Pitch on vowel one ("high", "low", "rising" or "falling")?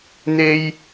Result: high